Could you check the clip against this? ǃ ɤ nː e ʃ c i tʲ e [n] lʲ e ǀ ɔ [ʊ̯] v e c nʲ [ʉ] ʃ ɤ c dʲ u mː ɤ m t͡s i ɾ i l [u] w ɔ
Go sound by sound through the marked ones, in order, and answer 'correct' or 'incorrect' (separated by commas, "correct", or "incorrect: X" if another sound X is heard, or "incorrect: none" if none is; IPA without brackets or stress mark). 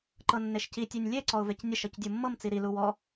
incorrect: nʲ, correct, incorrect: ə, correct